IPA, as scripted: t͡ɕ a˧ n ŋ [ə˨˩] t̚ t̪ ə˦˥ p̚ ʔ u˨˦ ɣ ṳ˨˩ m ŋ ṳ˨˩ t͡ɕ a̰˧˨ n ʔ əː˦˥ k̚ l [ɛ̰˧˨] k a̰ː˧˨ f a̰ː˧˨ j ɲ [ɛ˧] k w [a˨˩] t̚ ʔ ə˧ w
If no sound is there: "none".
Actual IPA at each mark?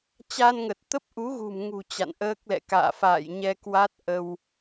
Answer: ə˨˩, ɛ̰˧˨, ɛ˧, a˦˥

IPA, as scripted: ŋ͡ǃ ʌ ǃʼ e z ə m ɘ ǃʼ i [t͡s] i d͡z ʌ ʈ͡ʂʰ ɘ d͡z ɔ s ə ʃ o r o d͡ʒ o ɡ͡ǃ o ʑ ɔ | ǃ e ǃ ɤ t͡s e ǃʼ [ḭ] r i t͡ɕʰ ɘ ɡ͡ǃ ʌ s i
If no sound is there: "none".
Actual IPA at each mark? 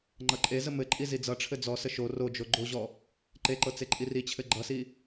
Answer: z, i

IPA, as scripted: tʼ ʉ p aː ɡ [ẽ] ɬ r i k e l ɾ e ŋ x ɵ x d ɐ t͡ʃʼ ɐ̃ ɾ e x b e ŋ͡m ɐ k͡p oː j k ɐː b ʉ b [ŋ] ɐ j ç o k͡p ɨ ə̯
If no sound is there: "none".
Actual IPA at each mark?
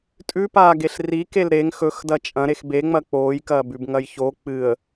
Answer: e, ŋ

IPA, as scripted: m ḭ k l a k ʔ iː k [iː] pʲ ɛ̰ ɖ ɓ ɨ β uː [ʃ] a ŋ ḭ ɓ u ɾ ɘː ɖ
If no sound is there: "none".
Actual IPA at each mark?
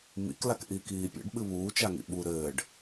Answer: iː, t͡ʃ

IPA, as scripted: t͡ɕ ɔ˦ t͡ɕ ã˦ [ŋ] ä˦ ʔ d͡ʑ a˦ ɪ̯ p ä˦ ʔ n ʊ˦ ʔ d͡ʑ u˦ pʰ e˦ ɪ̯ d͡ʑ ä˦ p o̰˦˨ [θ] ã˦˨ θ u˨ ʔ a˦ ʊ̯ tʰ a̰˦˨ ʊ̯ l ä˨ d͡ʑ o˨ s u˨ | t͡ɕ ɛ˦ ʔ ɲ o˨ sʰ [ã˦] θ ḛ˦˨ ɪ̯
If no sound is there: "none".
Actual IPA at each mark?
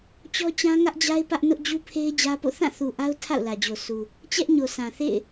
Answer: ŋ, θ, ã˨

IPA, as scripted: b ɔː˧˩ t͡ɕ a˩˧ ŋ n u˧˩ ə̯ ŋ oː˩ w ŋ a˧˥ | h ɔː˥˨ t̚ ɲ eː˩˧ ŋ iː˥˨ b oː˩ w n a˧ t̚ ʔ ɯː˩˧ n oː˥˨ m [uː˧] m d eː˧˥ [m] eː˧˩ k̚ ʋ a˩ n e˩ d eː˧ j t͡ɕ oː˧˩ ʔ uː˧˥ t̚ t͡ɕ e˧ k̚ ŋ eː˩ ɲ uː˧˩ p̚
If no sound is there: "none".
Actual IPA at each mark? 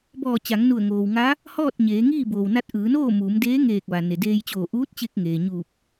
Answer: uː˩˧, ŋ

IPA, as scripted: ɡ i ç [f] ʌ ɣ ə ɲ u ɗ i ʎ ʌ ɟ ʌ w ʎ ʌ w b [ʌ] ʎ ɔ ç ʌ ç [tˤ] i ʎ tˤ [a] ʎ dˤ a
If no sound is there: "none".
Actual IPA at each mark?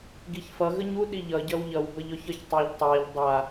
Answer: f, ʌ, tˤ, a

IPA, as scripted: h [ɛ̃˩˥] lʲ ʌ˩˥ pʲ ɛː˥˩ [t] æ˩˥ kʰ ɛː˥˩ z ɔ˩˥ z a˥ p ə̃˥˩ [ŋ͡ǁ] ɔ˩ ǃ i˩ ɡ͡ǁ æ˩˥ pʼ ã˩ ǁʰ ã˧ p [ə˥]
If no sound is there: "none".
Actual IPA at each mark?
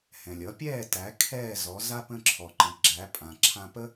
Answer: ɛ̃˩, t, ǁʰ, ə˥

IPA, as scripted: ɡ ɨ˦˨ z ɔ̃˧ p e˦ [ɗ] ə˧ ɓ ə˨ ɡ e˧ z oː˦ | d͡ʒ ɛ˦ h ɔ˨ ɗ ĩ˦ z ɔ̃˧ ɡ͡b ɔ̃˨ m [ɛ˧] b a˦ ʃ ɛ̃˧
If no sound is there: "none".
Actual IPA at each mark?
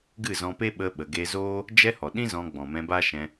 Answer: ɓ, ɛ̃˧

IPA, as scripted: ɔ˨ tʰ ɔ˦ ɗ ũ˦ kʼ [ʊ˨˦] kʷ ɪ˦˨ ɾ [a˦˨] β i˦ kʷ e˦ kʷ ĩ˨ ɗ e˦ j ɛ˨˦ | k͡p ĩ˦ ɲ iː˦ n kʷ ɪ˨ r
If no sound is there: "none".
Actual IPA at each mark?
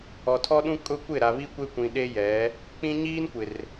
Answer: ʊ˦, a˨

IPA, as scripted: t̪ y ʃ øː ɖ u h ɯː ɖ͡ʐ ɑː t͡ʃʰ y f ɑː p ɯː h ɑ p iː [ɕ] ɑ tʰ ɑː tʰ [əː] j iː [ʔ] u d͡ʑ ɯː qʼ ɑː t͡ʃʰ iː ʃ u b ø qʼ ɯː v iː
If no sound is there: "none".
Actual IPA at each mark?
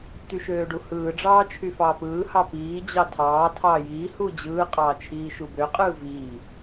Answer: d͡ʑ, ɑː, h

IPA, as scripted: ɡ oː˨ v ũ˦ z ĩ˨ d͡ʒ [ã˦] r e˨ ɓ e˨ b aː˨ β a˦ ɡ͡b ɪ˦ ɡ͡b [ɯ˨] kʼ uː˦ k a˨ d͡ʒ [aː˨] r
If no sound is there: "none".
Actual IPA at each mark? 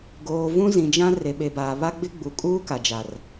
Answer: ã˦, u˨, a˨

